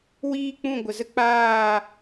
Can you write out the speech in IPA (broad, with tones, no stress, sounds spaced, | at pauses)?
w iː˦ k͡p ũ˦˨ ɡʷ ə˨ z ə˦ k͡p aː˦˨